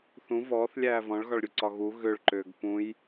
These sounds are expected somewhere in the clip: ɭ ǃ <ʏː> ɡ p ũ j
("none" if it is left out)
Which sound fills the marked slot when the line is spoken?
ʏː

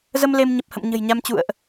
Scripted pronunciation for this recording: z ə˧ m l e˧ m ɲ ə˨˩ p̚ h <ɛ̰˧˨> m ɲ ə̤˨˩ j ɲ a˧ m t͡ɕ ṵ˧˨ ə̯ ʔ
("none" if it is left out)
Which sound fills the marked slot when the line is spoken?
ə̰˧˨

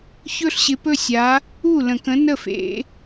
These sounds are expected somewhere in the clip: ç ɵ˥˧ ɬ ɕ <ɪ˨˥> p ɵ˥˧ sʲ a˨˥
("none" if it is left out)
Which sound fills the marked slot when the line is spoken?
ɪ˨˥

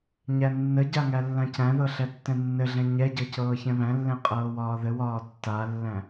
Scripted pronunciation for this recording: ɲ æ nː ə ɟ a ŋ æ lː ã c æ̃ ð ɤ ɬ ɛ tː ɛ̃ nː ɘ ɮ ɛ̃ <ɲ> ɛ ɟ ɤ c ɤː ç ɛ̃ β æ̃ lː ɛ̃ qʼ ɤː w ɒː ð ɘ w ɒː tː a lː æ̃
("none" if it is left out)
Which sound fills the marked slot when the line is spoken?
ɲ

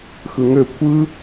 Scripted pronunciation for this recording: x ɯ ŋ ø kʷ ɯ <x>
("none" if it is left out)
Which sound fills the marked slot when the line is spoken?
none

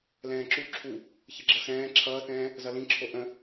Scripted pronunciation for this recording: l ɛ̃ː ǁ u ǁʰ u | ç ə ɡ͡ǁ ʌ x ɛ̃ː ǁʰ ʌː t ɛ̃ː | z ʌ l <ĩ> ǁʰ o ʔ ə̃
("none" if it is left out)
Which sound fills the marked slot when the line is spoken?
ĩ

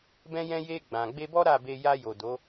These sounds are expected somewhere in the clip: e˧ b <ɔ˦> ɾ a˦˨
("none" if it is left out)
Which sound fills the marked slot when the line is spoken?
ɔ˦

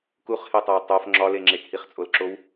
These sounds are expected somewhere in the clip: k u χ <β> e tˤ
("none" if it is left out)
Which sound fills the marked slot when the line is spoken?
h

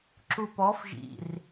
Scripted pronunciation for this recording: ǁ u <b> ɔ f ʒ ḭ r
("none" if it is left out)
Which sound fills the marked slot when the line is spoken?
p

